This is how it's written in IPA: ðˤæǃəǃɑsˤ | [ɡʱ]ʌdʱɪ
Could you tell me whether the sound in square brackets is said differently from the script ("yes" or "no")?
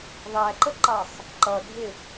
yes